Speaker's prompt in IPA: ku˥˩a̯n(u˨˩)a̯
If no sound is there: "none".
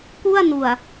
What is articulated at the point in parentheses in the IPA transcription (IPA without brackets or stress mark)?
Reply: u˨˩